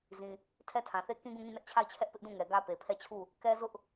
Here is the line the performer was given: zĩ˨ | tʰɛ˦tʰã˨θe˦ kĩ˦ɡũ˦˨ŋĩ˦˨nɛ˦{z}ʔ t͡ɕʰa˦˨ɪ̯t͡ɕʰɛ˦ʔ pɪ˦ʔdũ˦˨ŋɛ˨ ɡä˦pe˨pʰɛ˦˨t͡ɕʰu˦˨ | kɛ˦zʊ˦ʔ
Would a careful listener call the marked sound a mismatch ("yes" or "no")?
yes